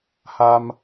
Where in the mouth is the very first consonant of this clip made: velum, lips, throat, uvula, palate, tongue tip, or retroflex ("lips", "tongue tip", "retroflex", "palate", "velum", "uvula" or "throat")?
throat